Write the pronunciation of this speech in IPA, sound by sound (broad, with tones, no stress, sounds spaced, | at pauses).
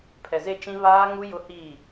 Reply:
pʰ ɛ˨ z e˦˨ t͡ʃ ĩ˦ β aː˦ ŋ u˦ j ʊ˦ h i˦˨